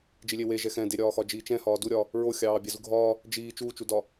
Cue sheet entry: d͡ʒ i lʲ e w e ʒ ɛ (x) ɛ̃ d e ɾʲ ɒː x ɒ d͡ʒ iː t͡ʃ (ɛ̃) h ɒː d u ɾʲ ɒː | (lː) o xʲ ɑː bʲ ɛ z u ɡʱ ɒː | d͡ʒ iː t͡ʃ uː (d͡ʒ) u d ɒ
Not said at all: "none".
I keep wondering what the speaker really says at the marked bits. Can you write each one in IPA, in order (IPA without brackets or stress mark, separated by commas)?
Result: x, ɛ̃, ɹ, t͡ʃ